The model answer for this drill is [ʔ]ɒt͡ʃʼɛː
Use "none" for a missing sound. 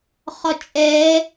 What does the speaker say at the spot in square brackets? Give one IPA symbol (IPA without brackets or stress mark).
χ